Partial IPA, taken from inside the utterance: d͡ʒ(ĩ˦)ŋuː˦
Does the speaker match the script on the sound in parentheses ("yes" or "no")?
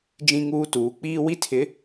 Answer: yes